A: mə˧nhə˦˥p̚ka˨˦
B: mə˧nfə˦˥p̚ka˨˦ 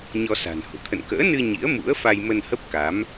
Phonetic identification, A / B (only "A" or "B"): A